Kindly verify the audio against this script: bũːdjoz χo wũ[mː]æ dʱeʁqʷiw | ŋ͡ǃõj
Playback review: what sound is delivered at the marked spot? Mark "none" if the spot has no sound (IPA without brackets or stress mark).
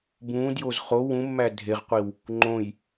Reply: mː